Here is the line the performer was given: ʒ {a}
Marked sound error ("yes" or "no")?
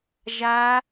no